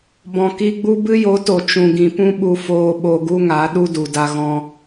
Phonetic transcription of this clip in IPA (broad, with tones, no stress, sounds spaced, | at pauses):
b ɔ̃˨ k i˧ ɡ͡b u˦ b ɨ˦ j o˨˦ t o˨ t͡ʃ ũ˨ ɡ ĩ˨ p ũ˦ ɓ u˧ f oː˧ ɓ o˧ ɡ u˦ ŋ a˨˦ ɗ u˦ d u˨ d a˧ ɣ ɔ̃˧